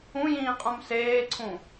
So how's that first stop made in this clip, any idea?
ejective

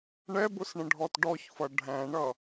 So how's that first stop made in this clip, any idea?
plain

